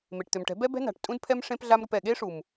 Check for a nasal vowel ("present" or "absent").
present